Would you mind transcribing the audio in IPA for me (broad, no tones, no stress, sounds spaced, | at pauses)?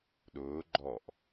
ɗ ʊː ɡ͡ǃ ɔ ʔ